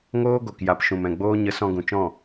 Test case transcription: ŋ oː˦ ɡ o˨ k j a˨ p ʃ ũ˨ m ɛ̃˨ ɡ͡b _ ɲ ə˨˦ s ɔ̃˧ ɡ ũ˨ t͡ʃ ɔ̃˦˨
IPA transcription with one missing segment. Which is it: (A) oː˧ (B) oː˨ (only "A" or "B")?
A